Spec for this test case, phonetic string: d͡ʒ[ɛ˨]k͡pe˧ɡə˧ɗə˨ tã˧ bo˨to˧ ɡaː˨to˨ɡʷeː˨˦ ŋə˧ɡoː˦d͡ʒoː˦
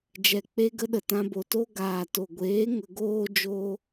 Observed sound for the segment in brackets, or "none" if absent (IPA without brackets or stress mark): ɛ˨